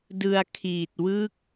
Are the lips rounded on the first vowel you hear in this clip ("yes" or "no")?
no